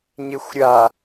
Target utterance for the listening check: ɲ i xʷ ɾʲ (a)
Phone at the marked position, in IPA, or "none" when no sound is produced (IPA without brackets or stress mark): a